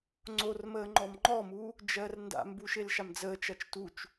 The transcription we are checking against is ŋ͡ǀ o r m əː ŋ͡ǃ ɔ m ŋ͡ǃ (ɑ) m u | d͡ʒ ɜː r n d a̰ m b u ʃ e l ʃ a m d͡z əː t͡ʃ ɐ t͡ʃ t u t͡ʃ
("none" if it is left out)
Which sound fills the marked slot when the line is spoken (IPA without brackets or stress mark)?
ɔ